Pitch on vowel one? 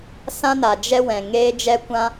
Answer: high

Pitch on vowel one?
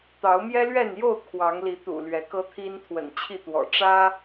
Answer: rising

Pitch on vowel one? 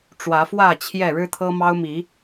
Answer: rising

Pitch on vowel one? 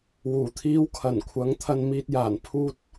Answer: low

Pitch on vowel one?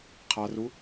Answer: low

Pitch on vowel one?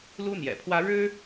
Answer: high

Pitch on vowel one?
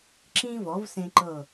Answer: high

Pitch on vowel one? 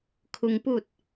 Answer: low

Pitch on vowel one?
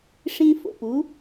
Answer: high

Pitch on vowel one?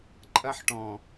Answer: high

